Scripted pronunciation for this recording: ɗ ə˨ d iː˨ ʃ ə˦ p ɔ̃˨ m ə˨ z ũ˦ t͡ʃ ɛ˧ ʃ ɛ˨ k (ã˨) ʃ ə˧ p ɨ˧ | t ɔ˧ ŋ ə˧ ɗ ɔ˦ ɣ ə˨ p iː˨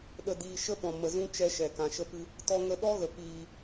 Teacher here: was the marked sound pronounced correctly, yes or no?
yes